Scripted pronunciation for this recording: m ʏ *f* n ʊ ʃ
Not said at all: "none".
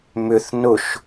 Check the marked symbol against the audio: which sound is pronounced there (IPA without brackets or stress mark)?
θ